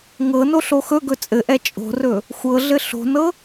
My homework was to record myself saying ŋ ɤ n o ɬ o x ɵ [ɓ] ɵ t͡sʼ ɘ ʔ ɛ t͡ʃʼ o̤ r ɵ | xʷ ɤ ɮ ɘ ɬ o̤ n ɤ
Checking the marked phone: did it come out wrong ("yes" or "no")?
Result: yes